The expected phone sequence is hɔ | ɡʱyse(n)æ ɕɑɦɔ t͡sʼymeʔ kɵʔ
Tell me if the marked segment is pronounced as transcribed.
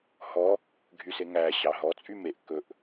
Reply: no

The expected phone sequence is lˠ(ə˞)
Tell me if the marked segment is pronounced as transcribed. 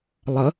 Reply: no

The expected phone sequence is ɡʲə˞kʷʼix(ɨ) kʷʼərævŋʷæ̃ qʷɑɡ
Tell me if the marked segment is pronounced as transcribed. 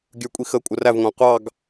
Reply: no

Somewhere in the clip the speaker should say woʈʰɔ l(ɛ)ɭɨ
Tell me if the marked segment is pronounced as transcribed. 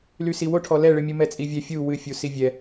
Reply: yes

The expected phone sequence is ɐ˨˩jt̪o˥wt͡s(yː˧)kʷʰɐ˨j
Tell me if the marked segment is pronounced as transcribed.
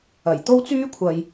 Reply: no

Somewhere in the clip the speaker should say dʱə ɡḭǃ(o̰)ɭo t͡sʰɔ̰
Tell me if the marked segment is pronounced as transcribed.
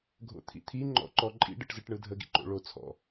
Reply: yes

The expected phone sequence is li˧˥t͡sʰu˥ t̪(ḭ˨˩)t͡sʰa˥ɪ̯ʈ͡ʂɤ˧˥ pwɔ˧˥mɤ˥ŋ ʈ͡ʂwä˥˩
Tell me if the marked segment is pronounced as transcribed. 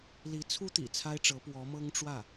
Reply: yes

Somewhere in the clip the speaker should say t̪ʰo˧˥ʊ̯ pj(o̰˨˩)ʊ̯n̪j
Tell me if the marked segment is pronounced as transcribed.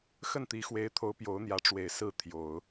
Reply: no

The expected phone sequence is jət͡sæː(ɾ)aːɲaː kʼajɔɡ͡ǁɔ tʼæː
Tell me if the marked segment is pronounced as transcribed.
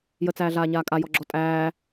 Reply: no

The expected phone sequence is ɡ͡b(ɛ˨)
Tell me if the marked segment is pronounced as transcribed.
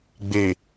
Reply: no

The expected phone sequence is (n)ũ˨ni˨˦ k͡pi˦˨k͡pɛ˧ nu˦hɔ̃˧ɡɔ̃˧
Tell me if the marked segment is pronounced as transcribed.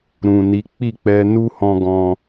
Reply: no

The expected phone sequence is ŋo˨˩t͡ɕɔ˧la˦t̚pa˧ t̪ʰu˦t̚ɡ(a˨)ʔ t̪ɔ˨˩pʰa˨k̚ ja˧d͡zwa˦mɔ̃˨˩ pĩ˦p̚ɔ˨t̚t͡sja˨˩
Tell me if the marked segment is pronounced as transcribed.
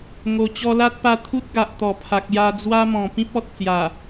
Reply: yes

